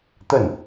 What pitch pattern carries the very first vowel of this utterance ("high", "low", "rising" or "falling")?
falling